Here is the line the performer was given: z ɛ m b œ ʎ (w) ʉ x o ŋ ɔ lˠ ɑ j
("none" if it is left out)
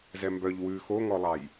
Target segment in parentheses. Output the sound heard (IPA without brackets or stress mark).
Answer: w